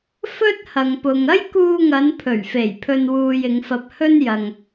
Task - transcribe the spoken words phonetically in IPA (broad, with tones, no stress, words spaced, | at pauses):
fɵ˥t̚hɐ˨ŋpʊ˨ŋ ɐ˥jkuː˧ŋɐ˨˧n pʰɵ˨˩ɥfe˨˩j pʰɵ˧nwuː˧jɪ˨˧ŋfɐ˧p̚ hɵ˥njɐ˨ŋ